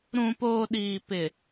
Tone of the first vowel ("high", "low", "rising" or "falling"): low